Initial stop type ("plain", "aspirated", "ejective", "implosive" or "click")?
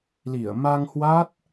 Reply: plain